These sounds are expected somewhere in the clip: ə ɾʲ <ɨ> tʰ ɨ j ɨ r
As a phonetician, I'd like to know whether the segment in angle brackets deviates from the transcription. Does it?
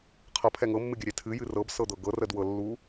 yes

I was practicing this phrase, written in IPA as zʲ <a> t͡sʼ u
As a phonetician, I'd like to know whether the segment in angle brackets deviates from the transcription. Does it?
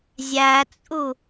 yes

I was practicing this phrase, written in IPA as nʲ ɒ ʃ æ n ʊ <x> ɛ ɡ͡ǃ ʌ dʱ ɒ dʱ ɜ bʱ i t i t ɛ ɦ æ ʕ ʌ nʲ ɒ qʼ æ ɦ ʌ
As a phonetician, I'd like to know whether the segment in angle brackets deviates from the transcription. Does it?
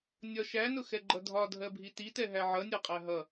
no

